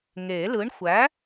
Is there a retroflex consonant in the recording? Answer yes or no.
yes